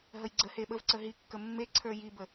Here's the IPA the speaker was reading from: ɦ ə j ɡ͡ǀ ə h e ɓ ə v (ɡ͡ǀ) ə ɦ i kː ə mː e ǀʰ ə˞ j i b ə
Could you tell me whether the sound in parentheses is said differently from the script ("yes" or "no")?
yes